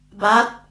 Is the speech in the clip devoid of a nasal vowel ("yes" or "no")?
yes